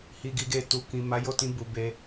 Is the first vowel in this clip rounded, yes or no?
no